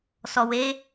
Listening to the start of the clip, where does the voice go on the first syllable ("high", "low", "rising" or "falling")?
low